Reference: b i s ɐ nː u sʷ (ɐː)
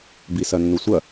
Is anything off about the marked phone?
yes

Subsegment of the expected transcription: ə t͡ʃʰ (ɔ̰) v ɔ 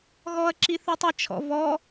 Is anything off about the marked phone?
no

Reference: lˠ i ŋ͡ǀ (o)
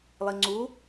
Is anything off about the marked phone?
yes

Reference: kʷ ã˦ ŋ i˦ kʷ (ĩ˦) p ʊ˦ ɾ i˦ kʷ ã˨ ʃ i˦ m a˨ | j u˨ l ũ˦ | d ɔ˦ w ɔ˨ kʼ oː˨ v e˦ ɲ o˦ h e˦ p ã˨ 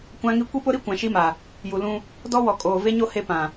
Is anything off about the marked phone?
yes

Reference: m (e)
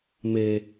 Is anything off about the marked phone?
no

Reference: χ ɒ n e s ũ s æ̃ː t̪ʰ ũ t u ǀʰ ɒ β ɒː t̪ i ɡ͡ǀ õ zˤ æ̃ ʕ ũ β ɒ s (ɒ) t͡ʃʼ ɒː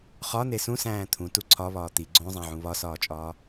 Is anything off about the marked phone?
yes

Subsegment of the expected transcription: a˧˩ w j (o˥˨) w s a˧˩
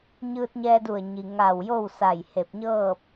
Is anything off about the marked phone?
no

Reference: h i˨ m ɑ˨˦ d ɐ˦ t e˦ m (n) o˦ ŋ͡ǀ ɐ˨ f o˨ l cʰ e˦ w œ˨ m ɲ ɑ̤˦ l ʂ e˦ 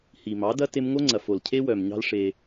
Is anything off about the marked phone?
yes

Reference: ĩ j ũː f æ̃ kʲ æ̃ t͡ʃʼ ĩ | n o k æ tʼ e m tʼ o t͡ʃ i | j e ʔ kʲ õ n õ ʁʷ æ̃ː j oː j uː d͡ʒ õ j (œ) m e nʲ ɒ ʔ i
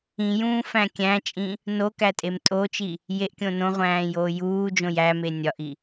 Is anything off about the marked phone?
yes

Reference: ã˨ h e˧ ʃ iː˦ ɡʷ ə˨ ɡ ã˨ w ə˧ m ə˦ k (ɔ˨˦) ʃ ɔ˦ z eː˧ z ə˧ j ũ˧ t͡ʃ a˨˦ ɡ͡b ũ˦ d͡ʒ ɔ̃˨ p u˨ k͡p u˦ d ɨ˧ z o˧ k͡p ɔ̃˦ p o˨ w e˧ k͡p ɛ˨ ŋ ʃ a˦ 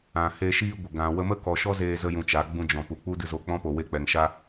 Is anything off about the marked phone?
yes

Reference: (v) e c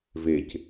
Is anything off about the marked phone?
no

